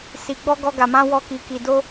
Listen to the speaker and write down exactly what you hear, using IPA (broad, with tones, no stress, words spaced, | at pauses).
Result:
si˧ɡ͡bɔ˦ ɡɔ˦ɡa˧mã˦ wɔ˦˨ki˧ki˧ do˦